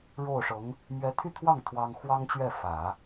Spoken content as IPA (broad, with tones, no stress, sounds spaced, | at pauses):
ɻ o˥˩ ʊ̯ ʂ ɤ˧˥ ŋ | m ɥ ɛ˧˥ t̪ʰ y˥˧ t̪ʰ w ɑ˥˩ ŋ t̪ʰ w ɑ˥ ŋ x w ɑ˥ ŋ t͡ɕ ɥ ɛ˥˩ f ä˨˩˦